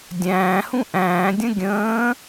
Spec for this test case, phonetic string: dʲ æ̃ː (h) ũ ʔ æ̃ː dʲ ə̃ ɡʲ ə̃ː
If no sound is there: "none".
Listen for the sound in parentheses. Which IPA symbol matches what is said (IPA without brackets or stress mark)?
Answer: h